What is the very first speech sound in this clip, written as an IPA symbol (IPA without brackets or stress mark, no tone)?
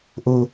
ʔ